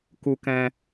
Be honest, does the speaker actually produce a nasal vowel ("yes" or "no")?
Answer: yes